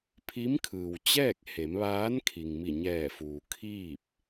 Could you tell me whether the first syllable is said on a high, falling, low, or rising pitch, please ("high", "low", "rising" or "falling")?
rising